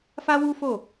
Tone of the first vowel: high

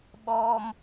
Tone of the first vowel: high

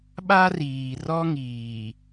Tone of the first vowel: high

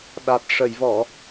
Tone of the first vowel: low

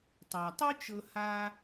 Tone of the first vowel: low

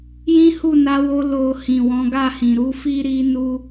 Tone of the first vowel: high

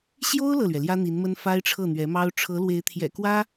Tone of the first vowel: high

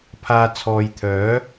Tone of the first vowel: low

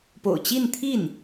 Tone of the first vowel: low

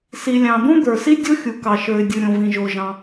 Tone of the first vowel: low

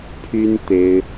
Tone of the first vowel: high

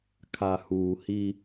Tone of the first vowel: low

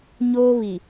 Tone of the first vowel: high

